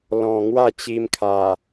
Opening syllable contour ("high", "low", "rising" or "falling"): low